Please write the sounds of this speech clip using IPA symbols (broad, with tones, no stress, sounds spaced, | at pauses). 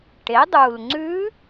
ʈ e˩˥ dˤ u˨˩ l ŋ͡ǀ ʉ˧˥